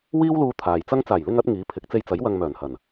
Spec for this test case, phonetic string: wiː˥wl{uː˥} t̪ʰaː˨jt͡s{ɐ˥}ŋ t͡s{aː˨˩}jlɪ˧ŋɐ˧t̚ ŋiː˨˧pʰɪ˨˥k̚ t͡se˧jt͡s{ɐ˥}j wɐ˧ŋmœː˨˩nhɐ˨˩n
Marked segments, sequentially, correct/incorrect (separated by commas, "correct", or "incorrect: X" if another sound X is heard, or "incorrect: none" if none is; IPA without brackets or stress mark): incorrect: uː˧, correct, correct, incorrect: ɐ˨˥